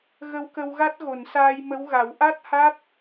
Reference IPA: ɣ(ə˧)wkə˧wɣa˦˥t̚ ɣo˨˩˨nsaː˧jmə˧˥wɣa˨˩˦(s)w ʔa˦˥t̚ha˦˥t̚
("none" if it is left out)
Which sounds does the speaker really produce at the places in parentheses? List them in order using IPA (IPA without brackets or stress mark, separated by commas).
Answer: ə˧, none